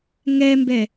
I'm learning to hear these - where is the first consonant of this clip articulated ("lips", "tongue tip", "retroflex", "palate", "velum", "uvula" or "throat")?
velum